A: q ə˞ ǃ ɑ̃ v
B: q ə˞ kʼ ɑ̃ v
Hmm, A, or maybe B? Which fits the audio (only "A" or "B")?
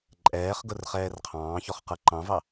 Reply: A